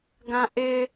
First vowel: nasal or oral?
nasal